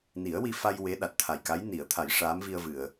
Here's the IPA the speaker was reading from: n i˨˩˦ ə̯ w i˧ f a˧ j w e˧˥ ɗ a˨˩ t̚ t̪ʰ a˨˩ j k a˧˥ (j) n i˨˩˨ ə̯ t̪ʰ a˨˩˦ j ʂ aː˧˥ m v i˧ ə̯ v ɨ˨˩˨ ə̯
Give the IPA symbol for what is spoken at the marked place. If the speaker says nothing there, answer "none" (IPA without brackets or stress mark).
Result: j